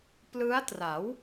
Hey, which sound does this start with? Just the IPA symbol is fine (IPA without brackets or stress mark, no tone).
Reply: p